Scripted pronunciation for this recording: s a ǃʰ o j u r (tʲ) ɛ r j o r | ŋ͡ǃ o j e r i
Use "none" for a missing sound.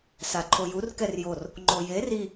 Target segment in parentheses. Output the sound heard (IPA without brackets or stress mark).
k